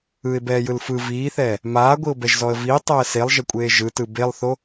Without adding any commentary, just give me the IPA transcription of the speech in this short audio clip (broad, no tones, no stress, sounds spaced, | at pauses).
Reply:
ɯ ɪ̯ b ɛː j ɯ l f ɯ v iː θ ɛː | m aː ɡʷ i ʊ̯ b ɛ ʒ z ɔ ə̯ v iː tˤ ɛː s e lˠ ʒ ɛ kʷʼ eː ʒ ɯ t ɯ b e lˠ θ o